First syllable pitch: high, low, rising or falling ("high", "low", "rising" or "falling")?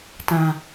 low